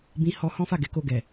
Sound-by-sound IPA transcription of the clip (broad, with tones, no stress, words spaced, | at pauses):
bĩ˧hɔ˧ hɔ̃˦fa˦˨ɡɛ˧ ko˧ɡɛ˨